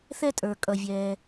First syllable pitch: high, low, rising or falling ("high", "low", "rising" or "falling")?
high